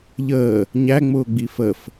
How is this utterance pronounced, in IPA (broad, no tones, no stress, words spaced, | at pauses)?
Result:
ʎəː | ɲæŋ͡mʊːɡ͡bi fəf